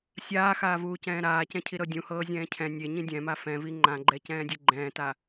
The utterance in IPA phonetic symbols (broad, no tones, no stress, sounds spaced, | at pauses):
sʲ aː x aː v uː c ɛ̃ː ɾ aː c ɛ̃ cʰ i ɾ ɤ dʲ ũ h ɤː zʲ ɛ̃ː cʰ ɛ̃ nʲ e ɲ ĩ dʲ ɛ̃ m a f ɛ̃ v i ŋ͡ǃ ã ɡ͡ǃ ɛ c ɛ̃ː dʲ e ɡ͡ǃ ɛ̃ː t a